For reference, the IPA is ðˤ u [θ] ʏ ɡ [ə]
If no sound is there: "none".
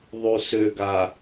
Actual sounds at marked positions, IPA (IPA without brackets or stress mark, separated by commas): s, a